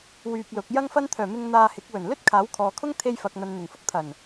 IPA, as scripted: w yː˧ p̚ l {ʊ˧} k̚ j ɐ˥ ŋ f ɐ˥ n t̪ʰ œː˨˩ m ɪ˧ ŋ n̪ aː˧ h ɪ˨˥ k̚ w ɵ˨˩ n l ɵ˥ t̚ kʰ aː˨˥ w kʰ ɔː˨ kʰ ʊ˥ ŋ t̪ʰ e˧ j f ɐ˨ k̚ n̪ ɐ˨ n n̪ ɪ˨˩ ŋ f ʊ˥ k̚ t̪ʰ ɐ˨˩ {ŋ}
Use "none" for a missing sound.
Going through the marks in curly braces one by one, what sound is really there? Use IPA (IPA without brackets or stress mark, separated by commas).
ʊ˨˥, n